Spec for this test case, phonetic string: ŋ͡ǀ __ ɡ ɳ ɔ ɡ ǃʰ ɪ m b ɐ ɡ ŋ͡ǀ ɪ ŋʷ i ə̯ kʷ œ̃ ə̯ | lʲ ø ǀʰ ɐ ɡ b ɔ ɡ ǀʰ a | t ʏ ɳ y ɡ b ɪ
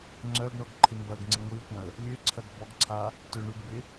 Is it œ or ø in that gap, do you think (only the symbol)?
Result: œ